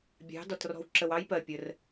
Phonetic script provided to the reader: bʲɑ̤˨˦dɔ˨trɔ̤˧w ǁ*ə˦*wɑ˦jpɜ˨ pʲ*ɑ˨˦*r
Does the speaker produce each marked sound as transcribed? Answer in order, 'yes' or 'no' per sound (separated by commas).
no, no